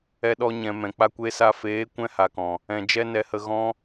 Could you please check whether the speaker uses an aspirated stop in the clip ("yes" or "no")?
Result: no